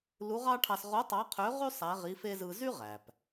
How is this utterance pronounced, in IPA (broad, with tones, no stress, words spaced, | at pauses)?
lu˧˥ʁɑ˥ʈʰɑ˧s ʁo˧˥ tˤɑ˧˥qʰø˧˥ʁy˥ sˤæ˧˥ʁi˧˥fe˥ zɯ˧zy˥ ʁæ˩p